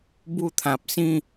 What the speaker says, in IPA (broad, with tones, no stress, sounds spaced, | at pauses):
b u˥˧ t̪ʰ ã˨ p̚ s ĩ˥˧